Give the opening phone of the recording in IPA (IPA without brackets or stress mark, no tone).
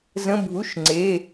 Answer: z